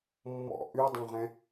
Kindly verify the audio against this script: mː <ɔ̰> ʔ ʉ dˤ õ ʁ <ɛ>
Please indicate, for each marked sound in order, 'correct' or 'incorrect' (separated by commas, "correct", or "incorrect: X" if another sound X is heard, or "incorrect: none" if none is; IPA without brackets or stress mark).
correct, incorrect: ɛ̃